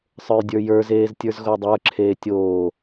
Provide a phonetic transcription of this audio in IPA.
sˤ ə˞ j dʲ ə˞ j ə˞ z eː z tʲ ə˞ z ɣ o dˤ ə˞ ǁʰ eː tʲ oː

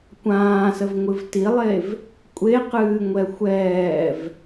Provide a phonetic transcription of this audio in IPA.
kʷ ãː s ə v ŋʷ ɨ v t i lˠ e v | kʷʼ e q ɨː ŋʷ ɛ xʷ ɛː v

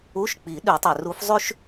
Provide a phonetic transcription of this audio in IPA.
u˧˥˧ ʃ k͡p i˨˩˦ ɗ ʉ˨˩˦ tˤ ø˨ r u˧˥ f zˤ ʉ˥ ʃ

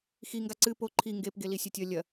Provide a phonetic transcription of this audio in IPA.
x i ŋ ɡ a ǀ ɨ p o ǃʰ i ŋ ɡ e p ɡ e l i sʲ ɐ tʲ ɐ lʲ ɐ

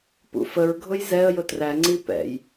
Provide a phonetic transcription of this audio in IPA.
p ṵ f ə ɹ ɡʱ ʊ j z ɛ ə̯ j ʊ t r æ ŋ͡ǀ i p ɛ̰ j

